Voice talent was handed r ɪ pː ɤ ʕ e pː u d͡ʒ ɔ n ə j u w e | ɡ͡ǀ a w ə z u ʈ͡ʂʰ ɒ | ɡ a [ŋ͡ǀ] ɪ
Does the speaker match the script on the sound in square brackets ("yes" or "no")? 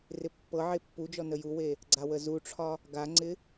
yes